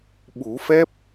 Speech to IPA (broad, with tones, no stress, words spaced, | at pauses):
ɓu˨˩˦fɛ˦˥p̚